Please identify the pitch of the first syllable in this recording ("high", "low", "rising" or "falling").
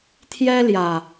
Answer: high